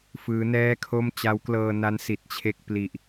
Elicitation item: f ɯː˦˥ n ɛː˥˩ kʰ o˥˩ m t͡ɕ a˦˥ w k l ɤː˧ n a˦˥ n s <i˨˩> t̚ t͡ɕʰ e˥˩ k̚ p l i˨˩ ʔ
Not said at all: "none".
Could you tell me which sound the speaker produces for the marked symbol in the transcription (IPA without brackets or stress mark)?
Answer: i˨˩